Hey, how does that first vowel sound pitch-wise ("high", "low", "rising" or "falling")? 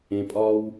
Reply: low